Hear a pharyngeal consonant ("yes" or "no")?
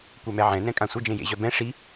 yes